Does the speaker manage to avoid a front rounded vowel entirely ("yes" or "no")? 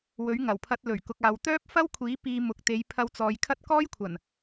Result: no